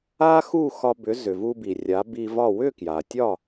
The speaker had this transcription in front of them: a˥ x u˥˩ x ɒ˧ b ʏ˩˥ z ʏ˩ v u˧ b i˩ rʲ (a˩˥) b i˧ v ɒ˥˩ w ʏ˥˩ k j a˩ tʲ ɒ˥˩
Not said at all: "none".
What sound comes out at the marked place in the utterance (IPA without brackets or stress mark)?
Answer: a˩˥